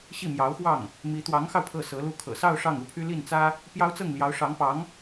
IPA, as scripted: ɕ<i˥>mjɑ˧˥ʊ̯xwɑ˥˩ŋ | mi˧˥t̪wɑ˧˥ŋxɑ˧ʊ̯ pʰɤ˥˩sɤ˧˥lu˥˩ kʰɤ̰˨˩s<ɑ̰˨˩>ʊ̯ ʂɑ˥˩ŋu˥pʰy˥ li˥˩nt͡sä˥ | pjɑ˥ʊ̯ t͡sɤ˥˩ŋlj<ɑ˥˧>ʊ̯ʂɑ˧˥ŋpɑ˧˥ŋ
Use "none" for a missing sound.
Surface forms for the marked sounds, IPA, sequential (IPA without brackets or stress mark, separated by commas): i˥˩, ɑ˥˧, ɑ˧˥